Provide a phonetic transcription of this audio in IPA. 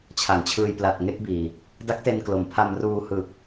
t͡ɕʰa˩˦ŋt͡ɕʰɯː˧j pla˨˩t̚ ŋe˥˩k̚biː˨˩ | da˦˥k̚te˧nklo˩˦m pʰa˧mruː˧ hɯ˨˩k̚

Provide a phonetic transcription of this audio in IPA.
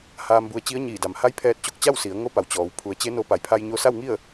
haː˧mbu˧ə̯t͡ɕi˧˥ə̯ɲiː˧˩ da˩mha˧˥j pʰɛː˧t̚t͡ɕo˧k̚ t͡ɕa˥˨wsi˩˧ə̯ ŋo˧˥ pa˩w t͡ɕɔː˩˧w pʰu˩˧ə̯t͡ɕe˧˥no˧ pa˩˧jpʰa˧j ɲo˧sa˥˨w ŋi˥˨ə̯

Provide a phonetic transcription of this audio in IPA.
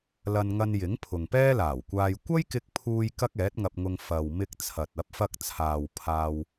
lɐ˧nŋɐ˧njɪ˨˥ŋ pʰʊ˨ŋpɛː˥laː˨˩wkʷaː˧j kʷɐ˥jkɪ˧k̚pʰuː˧j kɐ˥k̚ɛː˨˥t̚ŋɐ˧p̚ŋʊ˧ŋ fɐ˨w mɪ˧k̚ t͡sʰɐ˨t̚ ɐ˨˥p̚fɐ˧k̚t͡sʰaː˨w pʰaː˧w

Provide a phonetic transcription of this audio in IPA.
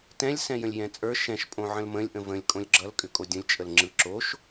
tɛ̃lʲsɛ̃ jə̃lʲjɛ̃t͡sʼə˞ ʃɛ̃ʃ pʼõʕə̃lmə̃lʲ ʔə̃və̃lʲ kʼõlʲɡ͡ǁʌlkʼʏkʼo dʲə̃lʲ t͡ʃʼəlŋ͡ǁɯ ǁoʃ

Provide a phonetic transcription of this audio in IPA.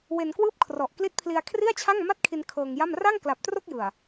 we˧nkwɯː˥˩p̚kʰrɔ˨˩ʔ kli˦˥t̚pʰli˧a̯ kʰri˥˩a̯t͡ɕʰa˥˩ŋma˥˩t̚kʰi˧n kʰɤː˧ŋja˥˩m ra˥˩ŋkla˨˩p̚tro˥˩k̚jɯ˨˩a̯

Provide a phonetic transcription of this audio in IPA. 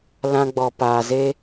lã˧ɡ͡bɔ˨ paː˨ze˦

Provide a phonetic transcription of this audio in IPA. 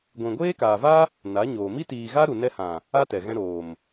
ɡʷĩ˨ɡʷeː˦kaː˨va˦ | na˨˦ɲoː˨ mi˧tiː˨ɣa˧ ɾu˨nɛ˧hã˨ | a˦tɛ˨ɣɛ̃˧ ɾoː˨m

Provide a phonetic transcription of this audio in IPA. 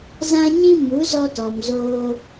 zã˦ɲĩ˦ mu˨˦zɔ˧tɔ˨m zoː˧

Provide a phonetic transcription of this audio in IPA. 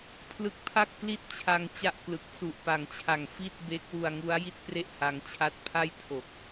pʰlɯ˦˥k̚pʰa˥˩k̚pli˥˩t̚t͡ɕʰa˧ŋ t͡ɕa˥˩ʔklɯ˨˩k̚ su˨˩ʔpa˨˩ŋt͡ɕʰa˨˩ŋ fi˥˩t̚be˦˥k̚ wu˧a̯ŋu˦˥a̯ji˥˩t̚pre˥˩ʔ ha˧ŋt͡ɕʰa˥˩t̚ pʰa˥˩jtʰo˨˩k̚

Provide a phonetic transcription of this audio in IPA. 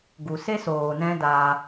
ɡu˨se˦soː˨ nɛ̃˦daː˧

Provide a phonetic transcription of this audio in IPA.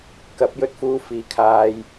kɐ˨˥p̚jɵ˧t̚fuː˧ fiː˨kʰaː˧j

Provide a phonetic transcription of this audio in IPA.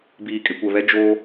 biː˨kʼɪ˨kʷɛ˨βɛ˦ d͡ʒoː˦

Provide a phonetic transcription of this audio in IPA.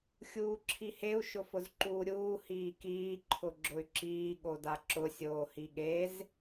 xʲuːǁʰiheu̯ ʃʊfʊzǃuːɾʲuː hiːkiː ǃʰʊɡ͡ǁʊy̯ǁiː ɠodaǁʊ sʲoːhiɠez

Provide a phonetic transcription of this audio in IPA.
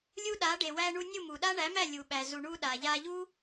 lʲu˦ɗa˨˦ ɖe˨wæ˧ɳu˧ nʲu˦˨mu˨ɗa˦ ɳæ˨˦mæ˦˨ lʲu˨ɓæ˨ zu˨ɳu˧ɗa˨ʎa˧ ʎu˦

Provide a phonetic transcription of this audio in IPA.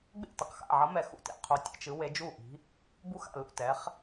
ɡ͡bḛ˥˩tʌ˨˥qxa̰˥˩ʕʌ˨˥ mɛ˨˥xṵ˥˩tḛ˥˩ qʰo˨˥ tʲḛ˥˩t͡ʃ ɯ˨˥we˨˥d͡ʒu˥˩ʔi̤˨˥ | bu˥˩xa̰˥˩ lṵ˥˩tɛ˨˥χ

